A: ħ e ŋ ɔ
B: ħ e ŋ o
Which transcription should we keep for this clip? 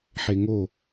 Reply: B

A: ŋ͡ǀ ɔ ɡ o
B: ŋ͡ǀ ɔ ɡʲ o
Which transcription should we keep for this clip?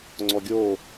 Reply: B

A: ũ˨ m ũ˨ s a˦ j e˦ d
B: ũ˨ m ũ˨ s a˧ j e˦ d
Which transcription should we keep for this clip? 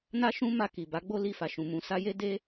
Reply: B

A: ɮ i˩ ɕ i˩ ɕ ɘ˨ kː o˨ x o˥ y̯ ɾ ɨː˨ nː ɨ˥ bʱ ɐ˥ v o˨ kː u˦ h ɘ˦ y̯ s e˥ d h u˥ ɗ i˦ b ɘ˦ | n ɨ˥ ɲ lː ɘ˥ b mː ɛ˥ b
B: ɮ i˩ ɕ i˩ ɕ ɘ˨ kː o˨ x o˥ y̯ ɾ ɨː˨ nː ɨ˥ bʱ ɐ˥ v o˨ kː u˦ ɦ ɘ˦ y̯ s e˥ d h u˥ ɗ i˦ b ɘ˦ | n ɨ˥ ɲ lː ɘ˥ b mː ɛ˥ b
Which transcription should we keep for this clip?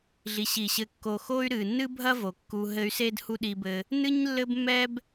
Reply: B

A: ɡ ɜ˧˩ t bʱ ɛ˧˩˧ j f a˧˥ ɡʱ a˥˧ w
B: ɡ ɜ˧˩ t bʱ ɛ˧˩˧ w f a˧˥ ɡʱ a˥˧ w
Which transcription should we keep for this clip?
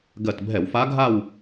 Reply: B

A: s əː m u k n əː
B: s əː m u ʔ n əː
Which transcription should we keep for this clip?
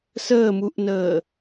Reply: B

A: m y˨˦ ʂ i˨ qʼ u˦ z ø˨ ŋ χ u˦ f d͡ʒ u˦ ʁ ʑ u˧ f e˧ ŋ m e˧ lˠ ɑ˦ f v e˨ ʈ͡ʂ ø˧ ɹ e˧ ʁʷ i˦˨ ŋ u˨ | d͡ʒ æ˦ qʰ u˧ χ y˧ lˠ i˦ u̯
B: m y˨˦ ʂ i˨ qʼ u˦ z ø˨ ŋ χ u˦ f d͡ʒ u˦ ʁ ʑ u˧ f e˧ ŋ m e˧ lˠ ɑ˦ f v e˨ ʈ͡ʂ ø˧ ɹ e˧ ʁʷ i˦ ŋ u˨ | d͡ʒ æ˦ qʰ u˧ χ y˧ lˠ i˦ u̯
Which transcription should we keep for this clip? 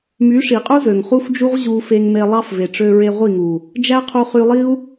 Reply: A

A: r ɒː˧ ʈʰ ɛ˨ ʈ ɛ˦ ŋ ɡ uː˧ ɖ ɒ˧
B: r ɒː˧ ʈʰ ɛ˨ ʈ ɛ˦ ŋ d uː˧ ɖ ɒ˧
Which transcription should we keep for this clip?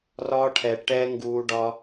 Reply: A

